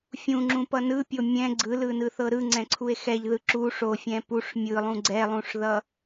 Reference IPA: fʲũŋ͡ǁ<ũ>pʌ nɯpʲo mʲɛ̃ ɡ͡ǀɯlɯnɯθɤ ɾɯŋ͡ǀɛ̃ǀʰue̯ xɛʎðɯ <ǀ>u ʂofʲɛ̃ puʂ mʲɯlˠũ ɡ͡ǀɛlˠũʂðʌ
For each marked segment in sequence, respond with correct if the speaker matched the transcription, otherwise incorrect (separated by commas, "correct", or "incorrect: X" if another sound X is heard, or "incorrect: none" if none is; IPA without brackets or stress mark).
correct, incorrect: ǁ